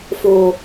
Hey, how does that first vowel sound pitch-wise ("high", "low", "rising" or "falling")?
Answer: low